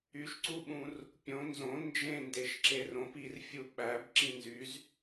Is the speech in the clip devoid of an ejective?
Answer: yes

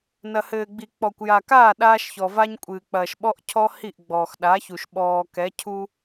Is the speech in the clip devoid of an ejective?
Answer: no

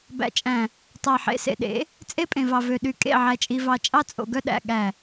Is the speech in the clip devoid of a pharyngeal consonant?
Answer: no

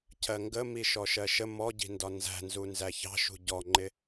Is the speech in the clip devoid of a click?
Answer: no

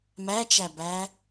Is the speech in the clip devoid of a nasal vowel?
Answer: yes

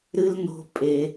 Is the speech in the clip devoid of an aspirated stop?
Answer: yes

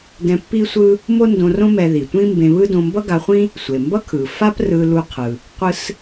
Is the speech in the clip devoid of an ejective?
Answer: yes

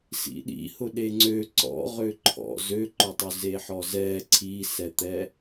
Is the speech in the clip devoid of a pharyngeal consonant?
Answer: no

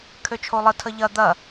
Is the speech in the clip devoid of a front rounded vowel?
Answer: no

